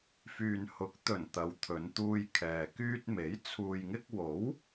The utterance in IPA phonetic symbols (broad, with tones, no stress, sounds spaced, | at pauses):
f yː˨ n h ʊ˨˥ k̚ t̪ ɵ˨˩ n t̪ ɐ˨˧ w t̪ʰ ɵ˨˧ n t̪ uː˧ j kʰ ɛː˨ k yː˧ t̚ m e˨˥ j t͡sʰ uː˨ j ŋ ɪ˧ k̚ w o˨˥ w